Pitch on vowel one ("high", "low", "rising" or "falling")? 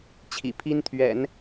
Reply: low